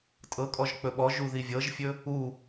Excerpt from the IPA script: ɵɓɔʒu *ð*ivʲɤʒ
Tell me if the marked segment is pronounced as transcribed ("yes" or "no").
yes